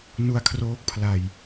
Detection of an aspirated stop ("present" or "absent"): present